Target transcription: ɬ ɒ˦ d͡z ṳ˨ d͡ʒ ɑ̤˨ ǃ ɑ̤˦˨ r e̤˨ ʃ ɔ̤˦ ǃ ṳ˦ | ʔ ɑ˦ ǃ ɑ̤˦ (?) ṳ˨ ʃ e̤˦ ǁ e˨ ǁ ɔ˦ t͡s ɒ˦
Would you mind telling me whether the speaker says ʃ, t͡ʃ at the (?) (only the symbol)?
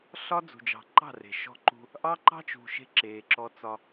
t͡ʃ